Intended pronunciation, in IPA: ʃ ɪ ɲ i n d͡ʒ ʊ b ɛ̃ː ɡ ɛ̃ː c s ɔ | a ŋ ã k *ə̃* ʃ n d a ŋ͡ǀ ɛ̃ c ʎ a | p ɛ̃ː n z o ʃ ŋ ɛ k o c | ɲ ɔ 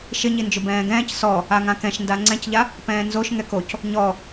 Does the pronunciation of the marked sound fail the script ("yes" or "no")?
yes